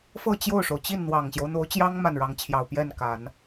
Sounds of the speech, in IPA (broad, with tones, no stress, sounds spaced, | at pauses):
f ɤ˥˧ t͡ɕ j o˥˩ ʊ̯ ʂ o˩ ʊ̯ t͡ɕ i˥˩ n n̪ w ɑ˨˩ ŋ ɕ j o˦ ʊ̯ n̪ o˧˥ ʊ̯ t͡ɕ j ɑ˥ ŋ m a˥˩ n ɻ ɑ˧˥ ŋ t͡ɕʰ j ɑ˨˩ ʊ̯ p j ɛ˥˩ n k a˨˩˦ n